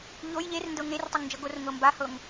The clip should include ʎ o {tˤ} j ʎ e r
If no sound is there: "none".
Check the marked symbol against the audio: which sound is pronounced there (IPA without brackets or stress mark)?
none